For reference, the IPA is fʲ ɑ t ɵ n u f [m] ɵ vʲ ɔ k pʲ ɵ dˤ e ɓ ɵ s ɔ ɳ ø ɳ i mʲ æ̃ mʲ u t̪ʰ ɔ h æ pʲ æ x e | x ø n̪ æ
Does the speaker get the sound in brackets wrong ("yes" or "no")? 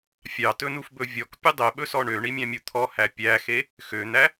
yes